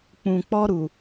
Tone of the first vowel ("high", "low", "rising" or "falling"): low